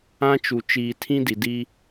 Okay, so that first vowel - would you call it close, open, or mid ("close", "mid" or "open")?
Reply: open